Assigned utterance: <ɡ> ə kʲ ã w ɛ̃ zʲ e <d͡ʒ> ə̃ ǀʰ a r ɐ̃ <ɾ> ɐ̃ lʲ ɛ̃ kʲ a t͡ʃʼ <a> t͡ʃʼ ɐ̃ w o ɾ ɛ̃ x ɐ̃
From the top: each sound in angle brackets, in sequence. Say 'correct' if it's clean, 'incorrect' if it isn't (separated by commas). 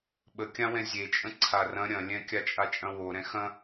incorrect, incorrect, incorrect, correct